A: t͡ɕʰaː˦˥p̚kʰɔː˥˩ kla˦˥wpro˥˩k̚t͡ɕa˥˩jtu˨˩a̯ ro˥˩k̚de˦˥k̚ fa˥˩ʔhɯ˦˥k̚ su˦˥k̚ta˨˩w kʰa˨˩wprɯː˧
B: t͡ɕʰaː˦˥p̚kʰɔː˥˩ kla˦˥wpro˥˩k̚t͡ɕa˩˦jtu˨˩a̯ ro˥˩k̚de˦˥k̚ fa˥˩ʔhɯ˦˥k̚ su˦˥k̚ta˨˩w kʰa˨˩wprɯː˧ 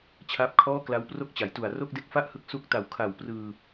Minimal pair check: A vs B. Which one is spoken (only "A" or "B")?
B